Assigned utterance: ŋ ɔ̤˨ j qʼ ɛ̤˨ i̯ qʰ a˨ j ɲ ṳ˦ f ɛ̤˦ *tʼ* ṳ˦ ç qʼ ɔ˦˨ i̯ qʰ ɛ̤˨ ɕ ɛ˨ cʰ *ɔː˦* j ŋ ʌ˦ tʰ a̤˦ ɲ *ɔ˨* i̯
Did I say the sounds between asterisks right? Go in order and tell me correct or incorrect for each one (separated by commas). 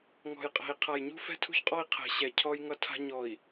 incorrect, incorrect, correct